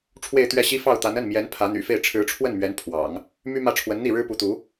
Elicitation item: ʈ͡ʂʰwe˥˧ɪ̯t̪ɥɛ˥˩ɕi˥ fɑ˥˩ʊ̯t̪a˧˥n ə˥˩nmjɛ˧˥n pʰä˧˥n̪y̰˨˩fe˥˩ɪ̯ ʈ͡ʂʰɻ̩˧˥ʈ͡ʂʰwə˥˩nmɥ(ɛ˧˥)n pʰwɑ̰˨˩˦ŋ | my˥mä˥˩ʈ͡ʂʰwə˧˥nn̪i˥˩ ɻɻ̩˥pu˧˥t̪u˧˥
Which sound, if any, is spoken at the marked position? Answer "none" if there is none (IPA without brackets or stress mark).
ɛ˧˥